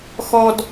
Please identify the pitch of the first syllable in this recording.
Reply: high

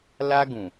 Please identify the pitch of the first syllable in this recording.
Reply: high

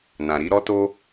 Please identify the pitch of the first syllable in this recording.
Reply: low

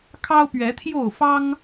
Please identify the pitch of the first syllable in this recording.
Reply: high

